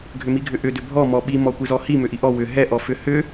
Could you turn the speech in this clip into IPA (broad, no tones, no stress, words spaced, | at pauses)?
ɡʱʏmiɡʱʏʔʏ dʏbʱɔ mɔɓi mɔkʷizɔhi mʏʔiʔɔ wʏ ɦɛ ʔɔfʏ hʏ